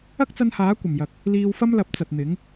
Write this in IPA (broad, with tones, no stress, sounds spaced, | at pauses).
ɐ˥ k̚ t͡s ɐ˧ n h aː˨˥ kʷ ɐ˨˩ m j ɐ˨ k̚ | l iː˧ w f ɐ˥ m l ɐ˨˥ p̚ t͡s ɐ˨ t̚ n̪ ɪ˨˥ ŋ